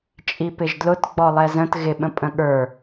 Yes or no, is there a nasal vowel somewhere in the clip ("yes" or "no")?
yes